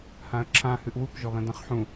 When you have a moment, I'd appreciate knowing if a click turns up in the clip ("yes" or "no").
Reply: yes